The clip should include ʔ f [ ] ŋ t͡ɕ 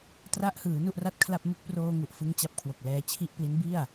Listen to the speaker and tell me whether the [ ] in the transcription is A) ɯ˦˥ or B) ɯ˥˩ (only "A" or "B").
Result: A